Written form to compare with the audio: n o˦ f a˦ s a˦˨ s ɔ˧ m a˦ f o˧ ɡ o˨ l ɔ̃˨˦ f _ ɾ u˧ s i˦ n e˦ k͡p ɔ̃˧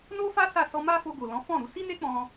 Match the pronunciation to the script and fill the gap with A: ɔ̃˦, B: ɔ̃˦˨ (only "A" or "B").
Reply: B